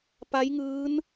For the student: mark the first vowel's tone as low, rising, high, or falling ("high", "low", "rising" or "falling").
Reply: rising